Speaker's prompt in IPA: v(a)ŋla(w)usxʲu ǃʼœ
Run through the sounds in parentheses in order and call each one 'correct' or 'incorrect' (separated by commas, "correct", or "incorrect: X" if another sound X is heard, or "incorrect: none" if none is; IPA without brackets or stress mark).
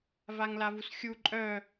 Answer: correct, incorrect: v